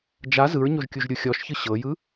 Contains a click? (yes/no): no